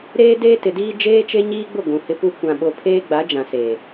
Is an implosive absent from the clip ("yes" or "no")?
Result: no